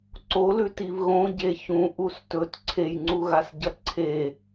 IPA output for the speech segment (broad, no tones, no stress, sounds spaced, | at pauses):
ǀ o l ʉ t i v ɣ õ ɟ e ç ũ ʔ u s t ɵ t ǀʰ e j ŋ͡ǀ u ɣ a s ɟ ɐ ǀʰ e